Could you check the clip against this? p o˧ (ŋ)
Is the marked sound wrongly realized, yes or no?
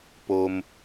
yes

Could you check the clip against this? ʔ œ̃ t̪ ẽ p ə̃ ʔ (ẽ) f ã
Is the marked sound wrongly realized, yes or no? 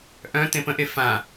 yes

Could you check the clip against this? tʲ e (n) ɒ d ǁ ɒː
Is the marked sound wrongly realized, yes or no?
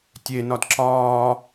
no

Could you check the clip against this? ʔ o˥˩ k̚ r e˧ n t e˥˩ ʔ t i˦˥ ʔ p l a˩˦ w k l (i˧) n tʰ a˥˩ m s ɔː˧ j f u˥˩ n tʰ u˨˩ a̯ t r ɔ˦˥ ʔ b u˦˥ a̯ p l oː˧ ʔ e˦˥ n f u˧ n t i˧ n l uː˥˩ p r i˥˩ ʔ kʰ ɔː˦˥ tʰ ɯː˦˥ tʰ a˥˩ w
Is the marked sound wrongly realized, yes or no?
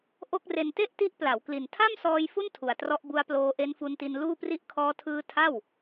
yes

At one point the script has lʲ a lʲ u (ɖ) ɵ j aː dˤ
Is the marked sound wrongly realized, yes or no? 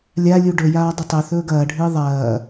no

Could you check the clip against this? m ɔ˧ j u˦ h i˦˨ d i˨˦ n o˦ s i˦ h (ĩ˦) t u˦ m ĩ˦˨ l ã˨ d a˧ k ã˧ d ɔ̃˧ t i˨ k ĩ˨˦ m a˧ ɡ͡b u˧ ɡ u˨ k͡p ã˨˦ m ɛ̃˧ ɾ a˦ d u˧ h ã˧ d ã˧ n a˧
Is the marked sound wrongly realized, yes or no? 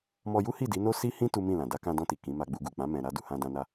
no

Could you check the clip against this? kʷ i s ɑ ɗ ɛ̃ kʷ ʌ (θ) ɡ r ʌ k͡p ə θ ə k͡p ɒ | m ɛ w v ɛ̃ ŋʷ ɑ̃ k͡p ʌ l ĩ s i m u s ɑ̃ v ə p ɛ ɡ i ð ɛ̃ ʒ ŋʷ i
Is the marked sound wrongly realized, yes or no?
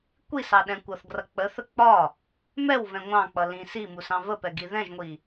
no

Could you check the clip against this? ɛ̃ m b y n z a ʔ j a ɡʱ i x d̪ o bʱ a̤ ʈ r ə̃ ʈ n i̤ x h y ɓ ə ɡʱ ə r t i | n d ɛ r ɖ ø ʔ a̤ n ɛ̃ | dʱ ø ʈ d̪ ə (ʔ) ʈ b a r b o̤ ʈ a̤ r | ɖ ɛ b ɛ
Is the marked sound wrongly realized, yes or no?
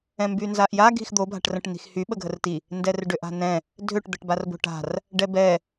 yes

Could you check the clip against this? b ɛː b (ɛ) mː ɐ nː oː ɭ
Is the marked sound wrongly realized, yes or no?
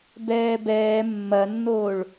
yes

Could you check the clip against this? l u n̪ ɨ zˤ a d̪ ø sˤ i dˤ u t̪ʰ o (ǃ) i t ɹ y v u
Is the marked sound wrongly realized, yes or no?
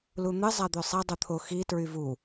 yes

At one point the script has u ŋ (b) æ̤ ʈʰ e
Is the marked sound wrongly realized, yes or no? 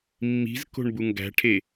yes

